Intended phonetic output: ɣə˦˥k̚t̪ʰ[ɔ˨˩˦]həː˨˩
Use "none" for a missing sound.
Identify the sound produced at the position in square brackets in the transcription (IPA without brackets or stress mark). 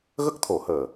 o˨˩˦